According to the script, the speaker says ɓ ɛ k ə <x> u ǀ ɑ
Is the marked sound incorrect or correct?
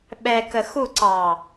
correct